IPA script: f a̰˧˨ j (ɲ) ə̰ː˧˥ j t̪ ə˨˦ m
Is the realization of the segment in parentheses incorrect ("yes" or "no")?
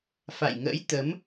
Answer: yes